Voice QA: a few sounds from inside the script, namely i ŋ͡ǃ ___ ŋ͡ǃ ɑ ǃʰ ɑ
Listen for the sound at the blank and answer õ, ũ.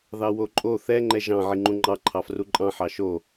ũ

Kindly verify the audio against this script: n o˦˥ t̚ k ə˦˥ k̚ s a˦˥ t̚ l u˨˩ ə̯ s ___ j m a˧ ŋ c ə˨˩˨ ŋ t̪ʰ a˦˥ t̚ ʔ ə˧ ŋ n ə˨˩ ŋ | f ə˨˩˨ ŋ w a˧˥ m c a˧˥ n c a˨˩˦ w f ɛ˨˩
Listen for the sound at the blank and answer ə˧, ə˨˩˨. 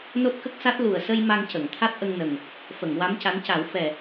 ə˧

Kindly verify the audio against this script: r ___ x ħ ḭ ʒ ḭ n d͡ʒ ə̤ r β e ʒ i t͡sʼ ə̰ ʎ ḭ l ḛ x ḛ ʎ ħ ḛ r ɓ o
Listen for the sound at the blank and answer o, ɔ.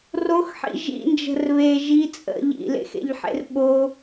o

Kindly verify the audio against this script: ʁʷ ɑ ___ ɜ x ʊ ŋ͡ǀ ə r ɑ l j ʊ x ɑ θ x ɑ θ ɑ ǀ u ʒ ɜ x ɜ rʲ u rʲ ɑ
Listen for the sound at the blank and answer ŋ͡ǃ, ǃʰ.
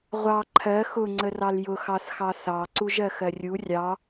ǃʰ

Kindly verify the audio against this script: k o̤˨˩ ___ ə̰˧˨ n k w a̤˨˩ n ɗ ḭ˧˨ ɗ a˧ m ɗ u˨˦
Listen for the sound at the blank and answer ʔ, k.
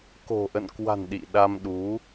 ʔ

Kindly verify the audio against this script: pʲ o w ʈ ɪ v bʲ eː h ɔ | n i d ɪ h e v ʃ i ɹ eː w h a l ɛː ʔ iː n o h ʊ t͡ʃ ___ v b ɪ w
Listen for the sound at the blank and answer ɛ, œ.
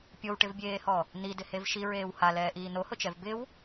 ɛ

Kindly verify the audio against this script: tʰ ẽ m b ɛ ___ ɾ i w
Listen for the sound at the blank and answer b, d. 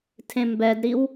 d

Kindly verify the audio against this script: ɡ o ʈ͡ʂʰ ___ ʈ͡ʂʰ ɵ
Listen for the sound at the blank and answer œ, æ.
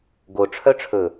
œ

